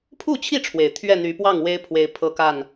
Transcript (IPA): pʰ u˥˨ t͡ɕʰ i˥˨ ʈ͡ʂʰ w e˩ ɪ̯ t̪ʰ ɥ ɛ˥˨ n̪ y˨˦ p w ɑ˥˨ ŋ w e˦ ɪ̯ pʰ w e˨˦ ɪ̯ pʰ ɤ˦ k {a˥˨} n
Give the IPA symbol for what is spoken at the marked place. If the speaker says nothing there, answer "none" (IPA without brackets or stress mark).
a˥˨